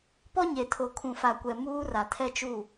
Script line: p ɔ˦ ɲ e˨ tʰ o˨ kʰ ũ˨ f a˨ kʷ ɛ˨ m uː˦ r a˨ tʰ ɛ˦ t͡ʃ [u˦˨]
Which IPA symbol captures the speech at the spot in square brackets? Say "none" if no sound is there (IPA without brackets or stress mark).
u˦˨